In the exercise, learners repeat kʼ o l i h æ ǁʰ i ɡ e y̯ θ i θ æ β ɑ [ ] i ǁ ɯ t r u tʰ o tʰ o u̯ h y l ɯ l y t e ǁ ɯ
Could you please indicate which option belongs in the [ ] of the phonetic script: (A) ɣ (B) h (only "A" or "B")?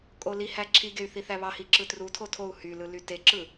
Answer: B